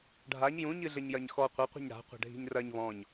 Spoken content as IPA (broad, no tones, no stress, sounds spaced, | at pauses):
ɖʱ a ɲ j ũ ɲ ɨ ɮ ɘ ɲ j ɐ ɲ x ɔ qʷ ɐ qʷ i̤ ɲ ɽ a̤ qʷ a̤ ɖʱ i̤ ɲ r ɐ ɲ β ɔ̃ ɲ